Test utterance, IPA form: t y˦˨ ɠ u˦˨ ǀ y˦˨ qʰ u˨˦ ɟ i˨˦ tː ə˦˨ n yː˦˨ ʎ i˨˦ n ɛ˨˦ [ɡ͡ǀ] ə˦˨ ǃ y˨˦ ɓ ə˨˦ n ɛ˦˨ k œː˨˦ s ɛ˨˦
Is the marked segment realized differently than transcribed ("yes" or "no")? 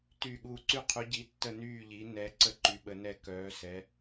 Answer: yes